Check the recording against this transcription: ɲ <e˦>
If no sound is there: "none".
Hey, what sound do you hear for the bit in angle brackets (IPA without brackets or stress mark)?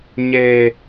e˦